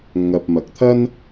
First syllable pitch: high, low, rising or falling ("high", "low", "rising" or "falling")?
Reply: low